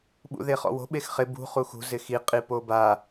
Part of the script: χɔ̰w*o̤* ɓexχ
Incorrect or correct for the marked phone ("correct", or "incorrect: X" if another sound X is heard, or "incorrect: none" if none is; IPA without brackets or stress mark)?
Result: correct